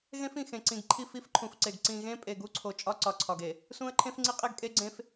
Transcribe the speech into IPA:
ɣ ẽ˦ f ĩ˨ x ẽ˨ ǀ ĩ˨ ɡ ǃʰ i˦˨ f i˦ f ǃʰ ũ˨ f ǀ e˨ ɡ ǀ ĩ˨ ɣ ẽ˦ pʼ e˨ ɡ u˦ ǀʰ o˨ t͡ʃʼ ɒ˦ ǀ ɒ˨ ǀʰ ɒ˨ ɡ e˨ | s ũ˦ ə̯ ǃʰ ẽ˦ f ŋ͡ǀ i˦ qʼ e˦ ɡ kʼ e˦ ɡ͡ǀ ẽ˦ f

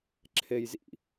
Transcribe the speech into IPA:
ǁʰ eː j z ḭ

